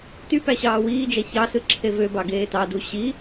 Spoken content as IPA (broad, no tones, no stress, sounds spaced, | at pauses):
t y p æ ɕ ɑː w iː d͡ʒ æ ç ɑ s ɯ ǁʰ e v ø b ɑ ɡ eː t ɑ d u ɕ i